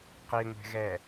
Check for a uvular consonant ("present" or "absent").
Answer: present